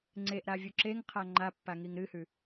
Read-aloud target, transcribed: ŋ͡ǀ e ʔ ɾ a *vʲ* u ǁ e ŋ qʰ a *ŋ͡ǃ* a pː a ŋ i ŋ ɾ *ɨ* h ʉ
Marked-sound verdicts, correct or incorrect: correct, correct, correct

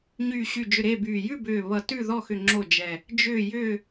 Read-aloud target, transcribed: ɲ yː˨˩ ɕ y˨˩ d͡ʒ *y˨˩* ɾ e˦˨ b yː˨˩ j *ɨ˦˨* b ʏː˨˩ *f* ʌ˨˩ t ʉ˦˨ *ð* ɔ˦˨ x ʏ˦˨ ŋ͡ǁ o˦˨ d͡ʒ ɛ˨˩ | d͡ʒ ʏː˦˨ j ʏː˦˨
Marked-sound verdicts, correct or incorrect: incorrect, incorrect, incorrect, correct

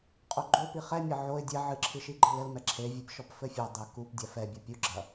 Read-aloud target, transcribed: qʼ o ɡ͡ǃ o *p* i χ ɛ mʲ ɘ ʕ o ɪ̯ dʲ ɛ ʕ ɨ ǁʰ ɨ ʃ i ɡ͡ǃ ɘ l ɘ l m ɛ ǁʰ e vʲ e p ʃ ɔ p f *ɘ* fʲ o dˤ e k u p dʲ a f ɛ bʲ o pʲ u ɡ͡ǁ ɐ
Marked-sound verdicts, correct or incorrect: correct, correct

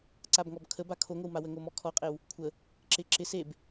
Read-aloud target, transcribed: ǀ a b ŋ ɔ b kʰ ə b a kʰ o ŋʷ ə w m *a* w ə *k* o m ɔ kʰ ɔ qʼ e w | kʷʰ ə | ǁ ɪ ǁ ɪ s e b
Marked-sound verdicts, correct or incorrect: correct, incorrect

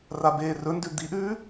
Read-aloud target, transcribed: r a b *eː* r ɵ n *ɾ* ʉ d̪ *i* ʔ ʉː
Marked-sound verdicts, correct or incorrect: correct, incorrect, correct

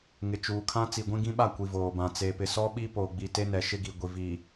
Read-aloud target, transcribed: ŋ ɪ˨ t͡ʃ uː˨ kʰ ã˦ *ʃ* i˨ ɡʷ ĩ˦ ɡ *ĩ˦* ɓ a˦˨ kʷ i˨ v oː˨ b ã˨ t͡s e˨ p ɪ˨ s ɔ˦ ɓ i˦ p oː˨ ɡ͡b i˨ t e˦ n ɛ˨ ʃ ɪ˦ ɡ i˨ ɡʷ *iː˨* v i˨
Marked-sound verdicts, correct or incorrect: incorrect, correct, incorrect

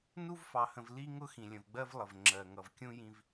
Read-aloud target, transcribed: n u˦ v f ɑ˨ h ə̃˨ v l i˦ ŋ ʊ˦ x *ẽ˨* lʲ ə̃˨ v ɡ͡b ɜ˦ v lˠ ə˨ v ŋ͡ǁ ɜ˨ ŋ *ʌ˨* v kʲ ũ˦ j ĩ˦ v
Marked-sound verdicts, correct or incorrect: incorrect, correct

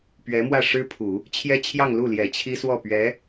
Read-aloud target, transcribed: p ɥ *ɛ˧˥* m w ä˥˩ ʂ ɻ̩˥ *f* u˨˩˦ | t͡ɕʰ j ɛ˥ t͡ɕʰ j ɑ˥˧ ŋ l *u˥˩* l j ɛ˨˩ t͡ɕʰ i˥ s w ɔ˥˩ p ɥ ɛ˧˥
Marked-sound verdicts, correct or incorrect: correct, incorrect, correct

